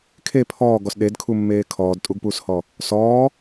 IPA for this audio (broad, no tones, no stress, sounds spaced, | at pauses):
kʰ e pʰ ɔː ɡ ɔ s ɗ e d kʰ u mː eː kʰ ɔː d tʼ u ɡ p uː s h ɔ | s ɔː